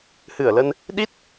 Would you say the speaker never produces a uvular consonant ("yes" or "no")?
yes